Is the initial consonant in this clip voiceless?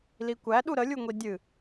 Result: no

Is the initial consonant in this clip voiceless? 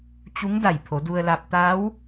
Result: yes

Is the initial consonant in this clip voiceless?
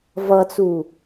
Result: no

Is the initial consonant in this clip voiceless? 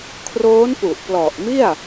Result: yes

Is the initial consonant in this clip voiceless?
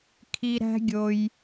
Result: yes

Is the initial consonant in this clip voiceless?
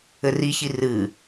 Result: no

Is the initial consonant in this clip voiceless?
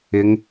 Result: no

